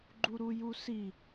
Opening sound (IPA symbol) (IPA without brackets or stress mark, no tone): ɡ͡ǃ